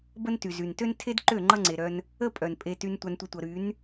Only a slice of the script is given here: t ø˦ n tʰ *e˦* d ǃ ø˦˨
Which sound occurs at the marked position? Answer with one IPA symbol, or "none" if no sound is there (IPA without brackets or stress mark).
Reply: e˦